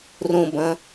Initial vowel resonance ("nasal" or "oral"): nasal